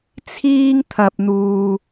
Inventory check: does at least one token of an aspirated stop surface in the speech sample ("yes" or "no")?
yes